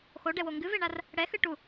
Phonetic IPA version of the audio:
x o ɖ ɛ w o ŋ ɡ ɨ v e ɳ a r | ɽ ɛ x ɨ ʈ u

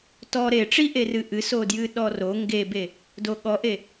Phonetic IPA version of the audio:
t ɔ ɾ e ʈ͡ʂ i ʔ e r ɨ ʔ ɨ s o d j ɨ ɗ ɔ r o ŋ ɡ e b e | d o ɠ ɔ ʔ e

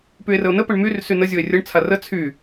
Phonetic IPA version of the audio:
p y e̯ r ə o̯ n ə p ə ɳ m y r s y n ə zʲ o e̯ rʲ ə ɳ t͡sʰ a r ə t͡sʰ y

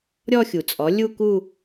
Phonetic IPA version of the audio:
ɾʲ ɔ˥˧ xʲ u˩ t͡sʼ ɔ˩˥ lʲ u˥˧ k u˥˧

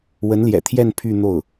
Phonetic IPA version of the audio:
w ə˧˥ n l j ɛ̰˨˩ t̪ʰ j ɛ˥˧ n pʰ y˥˧ n̪ o˥˩ ʊ̯

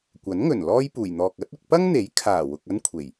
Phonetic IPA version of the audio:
kʷ ɐ˨˥ n ŋ ɵ˨˩ n l ɔː˥ j p uː˨˩ j n̪ ɔː˨ k̚ ɐ˨˥ t̚ ʊ˧ k̚ p ɐ˥ ŋ n̪ e˨˥ j kʰ aː˨˩ w ʊ˨ k̚ ɐ˥ n kʷʰ e˨˩ j

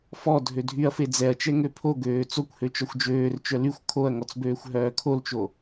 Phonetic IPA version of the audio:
f ɔ dʱ ø dʱ y ɐ̯ f e d͡z ɛ ɐ̯ t͡ʃ ɛ ŋ ø pʰ o ɡ øː t͡s o kʷ h ø t͡ʃ ɔ xʷ d͡ʒ øː r t͡ʃ œ l y xʷ kʰ o ɐ̯ ŋ ɔ t͡s b øː xʷ ɦ œː kʰ o l t͡ʃ o

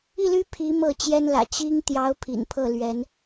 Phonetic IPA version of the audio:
i˥˩ l y˥ pʰ i˧˥ m ɤ˥˩ t͡ɕ j ɛ˥ n l ä̰˨˩ t͡ɕ i˥ ŋ t̪ j ɑ˧˥ ʊ̯ pʰ ḭ˨˩ n pʰ ɤ˥˩ l ɥ ɛ˧˥ n

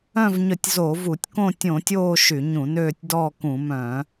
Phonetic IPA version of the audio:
œ̃˦˨ v ɲ œ˧˩˧ tʲ z o˧˩˧ v u˧˩˧ tʲ k õ˦˨ tʲ õ˧˩˧ tʲ oː˦˨ ʃ y˧˩˧ ɲ ũ˧˩˧ n øː˦˨ tʲ d ɔː˦˨ k ũ˧˩˧ m œ̃˧˩˧

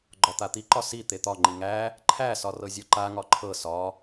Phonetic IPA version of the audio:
ɡ͡ǃ ɒ t̪ a t̪ i ǃ ɒ s i t̪ e t̪ ɒ ŋ͡ǃ i ŋ æ | ǃʰ æ s ɒ r ɤ zʲ ɤ ǃ a ŋ ɒ ǃʰ ɤ s ɒ

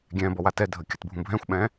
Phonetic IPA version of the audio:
ɡʲ ɛ̃ b ɔ w a t ɛ dʱ ə kʲ ə t bʱ ũ bʱ ɛ̃ xʷ ɓ ɛ̃

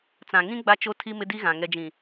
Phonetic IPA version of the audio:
t͡s ã˨ ŋ ĩ˦ ɡ͡b a˦ t͡ʃ o˦ tʰ i˦ m ɪ˦ d i˦ ɣ ã˨ ŋ ɛ˨ d͡ʒ ĩ˨

